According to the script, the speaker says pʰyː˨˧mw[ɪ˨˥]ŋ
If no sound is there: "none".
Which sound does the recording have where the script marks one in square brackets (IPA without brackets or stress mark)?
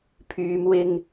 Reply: ɪ˧